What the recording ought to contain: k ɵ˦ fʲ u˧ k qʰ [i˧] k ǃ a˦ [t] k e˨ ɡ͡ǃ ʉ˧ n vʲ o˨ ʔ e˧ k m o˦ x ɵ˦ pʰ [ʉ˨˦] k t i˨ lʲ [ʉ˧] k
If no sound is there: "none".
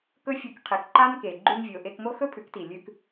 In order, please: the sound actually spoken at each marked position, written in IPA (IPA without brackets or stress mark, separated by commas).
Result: i˨, n, ʉ˨˦, ʉ˧